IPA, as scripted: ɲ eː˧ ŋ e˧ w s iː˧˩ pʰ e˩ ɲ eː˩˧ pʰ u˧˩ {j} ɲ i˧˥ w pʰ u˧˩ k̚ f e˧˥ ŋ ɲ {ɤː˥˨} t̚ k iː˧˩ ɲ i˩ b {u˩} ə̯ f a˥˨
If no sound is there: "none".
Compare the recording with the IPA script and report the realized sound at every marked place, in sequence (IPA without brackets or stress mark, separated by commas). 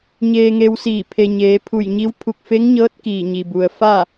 j, ɤː˧˥, u˩